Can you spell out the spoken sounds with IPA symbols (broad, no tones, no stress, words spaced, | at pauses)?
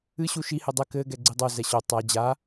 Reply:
ɨ ɕuʃi hɘdˤɘ kɘ ɡɛɡ͡ǀidˤo zɛɕo tˤa d͡ʑa